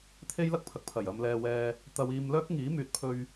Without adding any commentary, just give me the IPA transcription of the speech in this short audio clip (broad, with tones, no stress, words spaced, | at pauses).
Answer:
t̪ʰe˥jlɐ˥k̚pʰɐ˨k̚ pʰɐ˨˩jɐ˨mlɛː˨wɛː˨ | t̪ɐ˧wiː˧m lœː˥k̚ŋiː˨˥myː˨t̚pʰɵ˧ɥ